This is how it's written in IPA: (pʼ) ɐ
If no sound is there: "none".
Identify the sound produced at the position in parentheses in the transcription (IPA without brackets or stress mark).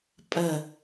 pʼ